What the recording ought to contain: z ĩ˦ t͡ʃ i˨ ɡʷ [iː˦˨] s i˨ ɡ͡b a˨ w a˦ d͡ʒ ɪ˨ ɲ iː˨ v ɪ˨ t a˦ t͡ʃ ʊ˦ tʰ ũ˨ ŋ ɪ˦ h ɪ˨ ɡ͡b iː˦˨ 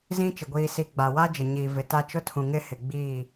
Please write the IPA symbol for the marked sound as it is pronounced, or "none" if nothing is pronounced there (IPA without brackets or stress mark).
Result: iː˨